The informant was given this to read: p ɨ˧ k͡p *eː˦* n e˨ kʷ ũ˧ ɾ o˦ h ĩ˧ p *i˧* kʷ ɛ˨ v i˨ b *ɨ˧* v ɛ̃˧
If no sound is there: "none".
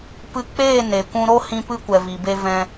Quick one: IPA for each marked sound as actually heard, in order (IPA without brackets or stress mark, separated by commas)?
eː˦˨, ɨ˧, e˧